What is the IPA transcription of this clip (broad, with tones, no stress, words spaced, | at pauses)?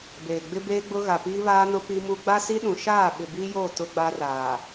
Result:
beː˨ ɡ͡bɪ˦beː˦ɡ͡bʊ˦ ɣa˨piː˦βaː˦nʊ˦ pi˦mu˦ ɡ͡ba˦si˦ɗũ˨ ʃaː˦˨ ɓɪ˨biː˦joː˦˨ tʊ˦ɡ͡ba˦raː˨